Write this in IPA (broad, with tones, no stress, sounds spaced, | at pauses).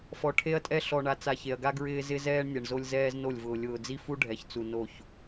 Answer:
f ɔ˨ ʈʰ e˦ ɐ̯ tʼ ɛ˦ ɬ ɔ˨ ɳ a˨ t͡s a˨ ç e˨ ɐ̯ ɡ a˦ ɡ ɹ ɪː˦ z ɪ˦ z ɛː˦ ɳ nʲ ɛ˨ ɳ z o˦ lʲ z ɛː˦ z n o˦˨ lʲ v ʊː˨ lʲ ʊː˨ d͡z i˦ f u˦ ɖʱ ɛ˨ ç t͡s u˨ n o˦˨ ç